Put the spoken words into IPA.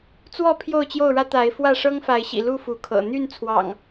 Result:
t͡swɔ˥˨ pʰjo˥˨ʊ̯t͡ɕjo˥˨ʊ̯ɻä˦ t̪a˨˦ɪ̯ fwä˥˨ʂɤ˦ŋfa˨˦ɪ̯ɕḭ˨˩ lu˥˨ fu˨˦kʰɤ̰˨˩ n̪y˥˨n t͡sʰwɑ̰˨˩ŋ

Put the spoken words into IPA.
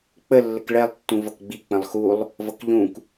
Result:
k͡pə lːəkɭɛlˠ tːũvʌkɡ͡bi k͡pə̃lˠxulˠ | vʌkʎũk

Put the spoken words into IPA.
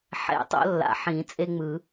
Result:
ħɛ̰˨˩˦tˤo̰˨˦ lːa̰˨ħĩ˨˩˦ t͡sʼe˦ŋ͡mɯ˨˩˦

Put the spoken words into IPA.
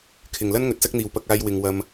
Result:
kʰɪ˨ŋlɐ˥n ŋɵ˨˥t̚sɐ˥k̚n̪iː˨w pɐ˧k̚aː˧j wɪ˧ŋ wɐ˧m

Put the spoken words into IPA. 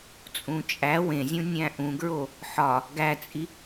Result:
t͡sʼũt͡ʃʼæ wẽzʲũ nʲæ̃ʔũɡɹo | ħɒ | ɡæt͡sʼi

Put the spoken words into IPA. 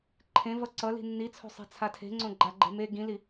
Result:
ǃʰẽvʌ ǀʌli̤ nːit͡sʰo̤sˤe̤t͡sʰa tʰe̤ŋ͡ǀõɡ͡ǃaɡ͡ǃe̤ me ɡĩli

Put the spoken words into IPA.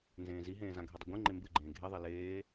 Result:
nzẽːziɦẽː zãɡʱedˤɨɡʷẽ ŋ͡ǃembɨɡ͡ǃẽː ɡʱeðˤe leː

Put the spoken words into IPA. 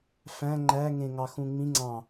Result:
fæ̃ ŋ͡ǃæŋẽŋɑ xũŋ͡mĩ ŋ͡ǀɑ̃

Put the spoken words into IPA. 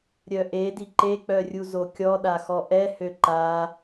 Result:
ɾʲœʔe diǃek͡pœ rʲuzokʲɔ ɗaxɔʔɛ høǃa

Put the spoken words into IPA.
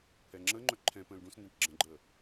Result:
pʰɛŋ͡ǁəŋ͡ǃœ ǃʰɛ̃ pə̃ːlɖũsndɛ̃ʈ ɡ͡ǁə̃ɡ͡ǃəː

